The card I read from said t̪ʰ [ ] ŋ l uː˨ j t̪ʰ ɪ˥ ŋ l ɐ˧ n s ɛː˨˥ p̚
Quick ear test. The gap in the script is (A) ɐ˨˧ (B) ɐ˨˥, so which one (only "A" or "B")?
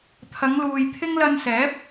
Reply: A